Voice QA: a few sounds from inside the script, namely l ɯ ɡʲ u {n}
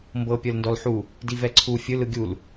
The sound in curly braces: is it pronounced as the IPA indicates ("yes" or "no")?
no